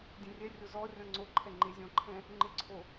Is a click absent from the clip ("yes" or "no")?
no